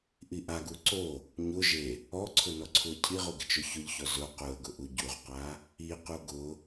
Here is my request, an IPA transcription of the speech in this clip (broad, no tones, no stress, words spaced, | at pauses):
ʔiʔaɡu ǀo | ɲʊ ʒe | ɔǀʰʊ nɔǀʰuə̯cʰiʁu ɡɪt͡ʃʊçʊʎçɔ zʊ quə̯ɡʊ ʔuɟuʁqa | iqu ɡʊ